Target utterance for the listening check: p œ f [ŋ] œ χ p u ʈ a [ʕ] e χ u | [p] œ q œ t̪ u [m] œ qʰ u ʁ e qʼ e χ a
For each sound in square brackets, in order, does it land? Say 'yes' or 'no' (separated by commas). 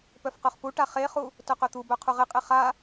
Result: no, no, no, no